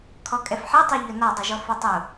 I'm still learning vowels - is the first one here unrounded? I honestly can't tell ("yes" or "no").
no